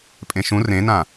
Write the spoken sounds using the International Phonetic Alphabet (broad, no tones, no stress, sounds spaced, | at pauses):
pʼ ẽ ʃ ũ r ẽ n ã